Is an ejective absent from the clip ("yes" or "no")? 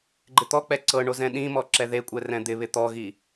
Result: no